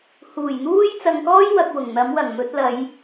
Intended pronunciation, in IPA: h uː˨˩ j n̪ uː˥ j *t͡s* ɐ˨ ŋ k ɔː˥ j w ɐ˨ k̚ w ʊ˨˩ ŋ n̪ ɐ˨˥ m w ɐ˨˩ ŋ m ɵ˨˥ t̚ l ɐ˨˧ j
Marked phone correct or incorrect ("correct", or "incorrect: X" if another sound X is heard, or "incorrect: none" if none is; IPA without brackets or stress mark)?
correct